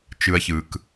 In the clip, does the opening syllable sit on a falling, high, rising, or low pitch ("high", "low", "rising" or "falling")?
low